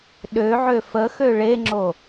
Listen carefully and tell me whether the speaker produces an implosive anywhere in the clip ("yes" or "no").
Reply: yes